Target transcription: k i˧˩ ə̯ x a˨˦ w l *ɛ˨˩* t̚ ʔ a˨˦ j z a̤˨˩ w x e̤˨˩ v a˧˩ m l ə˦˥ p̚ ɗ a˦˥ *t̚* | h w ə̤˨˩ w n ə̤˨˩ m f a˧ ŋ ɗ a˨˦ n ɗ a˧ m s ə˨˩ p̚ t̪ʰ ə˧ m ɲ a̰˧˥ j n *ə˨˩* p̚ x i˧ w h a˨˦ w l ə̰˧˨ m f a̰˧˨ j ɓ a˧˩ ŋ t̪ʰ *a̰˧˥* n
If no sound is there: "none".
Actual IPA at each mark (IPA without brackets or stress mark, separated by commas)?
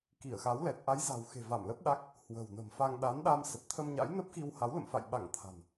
ɛ˨˩, k̚, ə˦˥, a̤˨˩